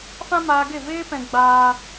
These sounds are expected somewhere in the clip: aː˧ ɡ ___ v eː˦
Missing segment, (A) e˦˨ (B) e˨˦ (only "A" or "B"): A